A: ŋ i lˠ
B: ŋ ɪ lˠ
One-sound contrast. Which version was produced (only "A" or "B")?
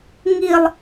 A